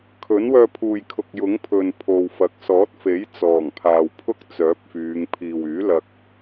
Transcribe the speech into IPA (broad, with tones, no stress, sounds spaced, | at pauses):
kʰ ɵ˨˥ n w œː˧ pʰ uː˨ j kʰ ʊ˨ k̚ j ʊ˨˥ ŋ pʰ ɵ˨ n pʰ o˨ w f ɐ˨˥ k̚ s ɔː˨˥ t̚ f e˨˥ j t͡s ɔː˨˩ ŋ pʰ aː˨ w pʰ ʊ˥ k̚ t͡s œː˨˥ p̚ f yː˨˧ ŋ pʰ iː˨ w yː˨˥ l ɐ˧ k̚